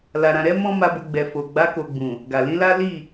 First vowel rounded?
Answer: no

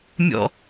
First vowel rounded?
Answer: yes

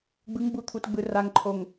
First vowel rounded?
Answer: no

